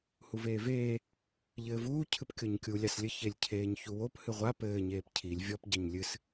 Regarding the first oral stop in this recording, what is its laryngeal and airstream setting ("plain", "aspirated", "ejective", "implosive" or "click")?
aspirated